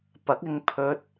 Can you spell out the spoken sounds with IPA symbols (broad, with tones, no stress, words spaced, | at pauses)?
pɐ˨˥k̚ɪ˧ŋ pʰɵ˧t̚